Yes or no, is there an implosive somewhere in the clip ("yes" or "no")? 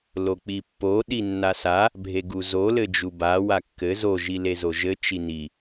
yes